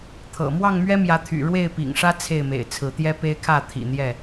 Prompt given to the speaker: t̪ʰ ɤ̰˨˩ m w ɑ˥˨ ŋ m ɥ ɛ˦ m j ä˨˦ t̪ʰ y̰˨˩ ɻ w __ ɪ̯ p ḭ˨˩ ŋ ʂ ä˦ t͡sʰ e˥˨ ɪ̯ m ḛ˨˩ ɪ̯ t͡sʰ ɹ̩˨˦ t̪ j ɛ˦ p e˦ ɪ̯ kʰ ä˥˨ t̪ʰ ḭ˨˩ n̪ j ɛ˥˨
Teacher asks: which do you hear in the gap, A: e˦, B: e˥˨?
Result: B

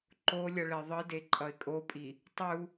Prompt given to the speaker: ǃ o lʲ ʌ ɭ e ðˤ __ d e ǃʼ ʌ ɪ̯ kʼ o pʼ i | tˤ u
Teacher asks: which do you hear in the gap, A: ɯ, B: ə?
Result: A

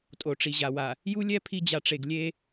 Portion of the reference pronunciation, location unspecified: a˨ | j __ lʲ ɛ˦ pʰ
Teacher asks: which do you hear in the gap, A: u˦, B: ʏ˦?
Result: A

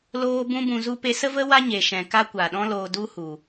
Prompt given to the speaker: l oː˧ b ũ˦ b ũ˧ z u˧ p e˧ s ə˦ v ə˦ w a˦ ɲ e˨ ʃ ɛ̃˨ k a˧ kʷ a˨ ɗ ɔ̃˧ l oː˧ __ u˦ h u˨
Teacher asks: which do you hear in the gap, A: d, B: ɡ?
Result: A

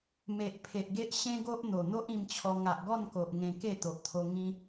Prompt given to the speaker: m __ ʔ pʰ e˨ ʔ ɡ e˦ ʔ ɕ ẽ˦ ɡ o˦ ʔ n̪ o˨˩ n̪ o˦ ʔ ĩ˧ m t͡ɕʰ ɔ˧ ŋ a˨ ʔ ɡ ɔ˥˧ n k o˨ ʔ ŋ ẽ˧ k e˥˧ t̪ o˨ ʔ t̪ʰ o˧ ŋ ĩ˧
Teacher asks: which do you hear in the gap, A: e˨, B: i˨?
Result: A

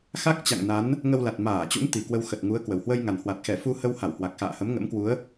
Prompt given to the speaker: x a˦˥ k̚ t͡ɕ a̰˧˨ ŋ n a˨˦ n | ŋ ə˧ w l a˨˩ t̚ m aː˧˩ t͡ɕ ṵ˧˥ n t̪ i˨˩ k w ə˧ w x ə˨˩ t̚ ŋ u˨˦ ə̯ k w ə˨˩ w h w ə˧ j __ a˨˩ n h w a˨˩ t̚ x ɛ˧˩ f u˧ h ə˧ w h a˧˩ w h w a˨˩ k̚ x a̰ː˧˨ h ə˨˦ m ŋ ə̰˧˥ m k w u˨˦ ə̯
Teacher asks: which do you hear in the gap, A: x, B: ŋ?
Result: B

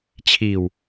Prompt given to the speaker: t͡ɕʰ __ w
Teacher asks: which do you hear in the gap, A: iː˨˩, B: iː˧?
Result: A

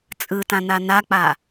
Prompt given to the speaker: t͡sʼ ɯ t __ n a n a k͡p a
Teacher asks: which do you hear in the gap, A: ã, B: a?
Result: A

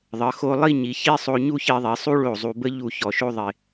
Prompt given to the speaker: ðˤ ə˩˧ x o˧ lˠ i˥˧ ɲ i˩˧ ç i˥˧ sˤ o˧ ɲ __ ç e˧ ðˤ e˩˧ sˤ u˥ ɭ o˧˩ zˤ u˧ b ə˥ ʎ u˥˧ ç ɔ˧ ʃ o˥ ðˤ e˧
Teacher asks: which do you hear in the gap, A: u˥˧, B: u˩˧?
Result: A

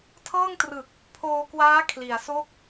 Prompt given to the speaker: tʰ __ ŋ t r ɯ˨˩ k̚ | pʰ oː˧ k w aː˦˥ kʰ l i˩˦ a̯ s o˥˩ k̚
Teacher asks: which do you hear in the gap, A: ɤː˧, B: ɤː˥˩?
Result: B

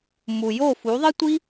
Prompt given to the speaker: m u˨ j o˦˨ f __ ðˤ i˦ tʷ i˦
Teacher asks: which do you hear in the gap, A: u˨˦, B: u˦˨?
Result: A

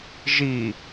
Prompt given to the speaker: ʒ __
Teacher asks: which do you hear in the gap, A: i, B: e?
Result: A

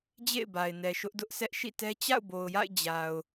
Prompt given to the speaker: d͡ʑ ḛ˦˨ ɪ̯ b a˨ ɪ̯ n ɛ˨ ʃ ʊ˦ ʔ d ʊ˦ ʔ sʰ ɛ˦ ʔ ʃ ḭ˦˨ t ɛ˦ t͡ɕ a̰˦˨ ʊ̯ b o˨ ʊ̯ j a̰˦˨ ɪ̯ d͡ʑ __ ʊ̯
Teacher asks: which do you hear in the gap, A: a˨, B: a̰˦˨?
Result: A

